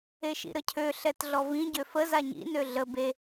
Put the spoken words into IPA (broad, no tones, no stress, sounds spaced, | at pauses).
e ʃ ḭ ɾ ə cʰ ø ɬ ɛ t ɮ ɔ v ĩ ɟ ø f ə z a ɲ ḭ n ø ɮ ə b e